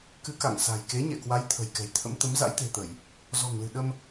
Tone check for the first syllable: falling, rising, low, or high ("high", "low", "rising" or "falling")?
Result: rising